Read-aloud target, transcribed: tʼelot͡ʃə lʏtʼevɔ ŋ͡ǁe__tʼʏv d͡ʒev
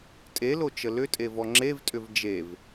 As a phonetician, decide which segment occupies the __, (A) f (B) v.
B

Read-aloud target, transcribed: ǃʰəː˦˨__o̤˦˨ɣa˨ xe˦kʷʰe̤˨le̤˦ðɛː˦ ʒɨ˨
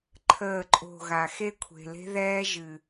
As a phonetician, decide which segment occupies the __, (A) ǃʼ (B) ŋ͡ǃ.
A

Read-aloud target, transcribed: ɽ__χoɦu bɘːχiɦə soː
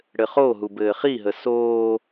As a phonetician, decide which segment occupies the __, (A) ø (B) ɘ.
B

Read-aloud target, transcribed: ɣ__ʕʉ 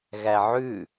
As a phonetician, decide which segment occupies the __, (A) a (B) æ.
B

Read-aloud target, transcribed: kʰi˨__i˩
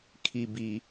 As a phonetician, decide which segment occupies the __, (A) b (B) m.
A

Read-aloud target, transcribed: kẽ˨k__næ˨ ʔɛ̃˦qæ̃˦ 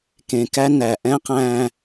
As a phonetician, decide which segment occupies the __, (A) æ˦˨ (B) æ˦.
B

